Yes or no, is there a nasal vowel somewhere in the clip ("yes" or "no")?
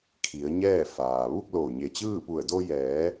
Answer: no